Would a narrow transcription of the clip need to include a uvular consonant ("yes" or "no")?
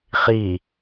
yes